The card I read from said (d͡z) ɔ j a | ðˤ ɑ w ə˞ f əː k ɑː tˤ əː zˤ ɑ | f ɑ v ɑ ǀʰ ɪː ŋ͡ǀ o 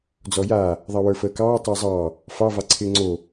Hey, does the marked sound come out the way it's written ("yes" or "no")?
yes